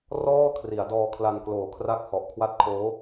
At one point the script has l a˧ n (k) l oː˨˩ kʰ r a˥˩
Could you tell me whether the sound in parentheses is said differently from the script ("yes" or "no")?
no